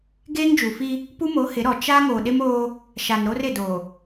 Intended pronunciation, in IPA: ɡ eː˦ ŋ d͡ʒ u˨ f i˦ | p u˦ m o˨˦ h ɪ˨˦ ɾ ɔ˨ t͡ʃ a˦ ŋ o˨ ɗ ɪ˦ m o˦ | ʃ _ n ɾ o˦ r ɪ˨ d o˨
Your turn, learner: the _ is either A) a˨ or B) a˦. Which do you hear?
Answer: A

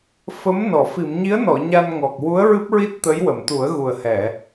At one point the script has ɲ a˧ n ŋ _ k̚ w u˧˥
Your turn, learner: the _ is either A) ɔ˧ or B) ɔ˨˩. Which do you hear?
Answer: B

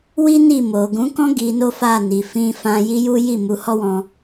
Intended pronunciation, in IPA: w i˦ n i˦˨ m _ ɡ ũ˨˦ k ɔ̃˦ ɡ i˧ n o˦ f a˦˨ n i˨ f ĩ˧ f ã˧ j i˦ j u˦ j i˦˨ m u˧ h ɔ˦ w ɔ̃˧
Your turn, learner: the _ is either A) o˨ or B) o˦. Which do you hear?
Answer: A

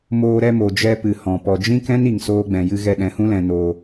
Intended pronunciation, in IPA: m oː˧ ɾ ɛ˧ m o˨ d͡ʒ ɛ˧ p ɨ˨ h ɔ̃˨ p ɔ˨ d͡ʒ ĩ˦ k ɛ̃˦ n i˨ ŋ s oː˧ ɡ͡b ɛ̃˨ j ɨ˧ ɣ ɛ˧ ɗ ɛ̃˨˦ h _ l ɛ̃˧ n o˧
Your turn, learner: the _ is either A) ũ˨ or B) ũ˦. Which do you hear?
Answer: B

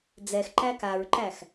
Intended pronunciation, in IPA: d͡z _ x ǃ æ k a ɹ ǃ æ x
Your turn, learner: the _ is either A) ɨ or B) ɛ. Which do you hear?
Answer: B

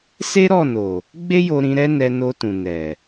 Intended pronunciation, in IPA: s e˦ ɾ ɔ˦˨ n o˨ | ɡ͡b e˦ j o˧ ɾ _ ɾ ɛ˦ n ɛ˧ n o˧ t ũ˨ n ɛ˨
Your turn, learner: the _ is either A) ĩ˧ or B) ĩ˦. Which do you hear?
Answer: A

